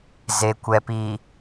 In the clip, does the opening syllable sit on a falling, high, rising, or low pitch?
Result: low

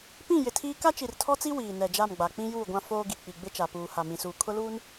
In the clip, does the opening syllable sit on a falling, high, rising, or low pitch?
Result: falling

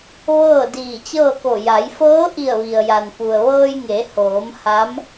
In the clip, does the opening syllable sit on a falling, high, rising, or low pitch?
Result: falling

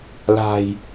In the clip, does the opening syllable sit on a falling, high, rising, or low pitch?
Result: low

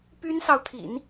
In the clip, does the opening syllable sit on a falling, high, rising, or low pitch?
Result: high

